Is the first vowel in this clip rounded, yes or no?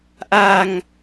no